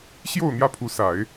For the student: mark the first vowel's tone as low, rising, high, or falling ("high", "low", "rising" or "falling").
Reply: falling